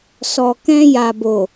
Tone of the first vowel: low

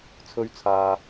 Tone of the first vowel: high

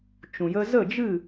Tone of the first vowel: low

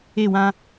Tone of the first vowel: falling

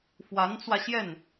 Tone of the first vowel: rising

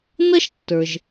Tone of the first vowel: high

